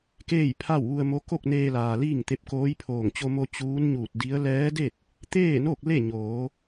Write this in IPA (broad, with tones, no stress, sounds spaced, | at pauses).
k eː˥˨ j pʰ a˥˨ w ʋ u˧ ə̯ m o˧˥ k o˥˨ k̚ n eː˧ l aː˩ l iː˥˨ ŋ t̪ e˧˥ p̚ k oː˧˥ j pʰ oː˧˩ ŋ t͡ɕ o˧ m o˧ t͡ɕ uː˧˥ n ɲ uː˧˩ t̚ d i˧˥ ə̯ l ɛː˧˥ d e˥˨ t̚ | t̪ eː˥˨ n o˥˨ k̚ l e˥˨ ɲ oː˩˧